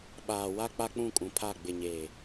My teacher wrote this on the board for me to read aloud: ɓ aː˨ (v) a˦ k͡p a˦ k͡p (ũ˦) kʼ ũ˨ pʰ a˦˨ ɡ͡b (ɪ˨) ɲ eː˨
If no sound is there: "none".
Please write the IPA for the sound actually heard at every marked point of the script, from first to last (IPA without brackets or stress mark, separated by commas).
w, ũ˦˨, ɪ˨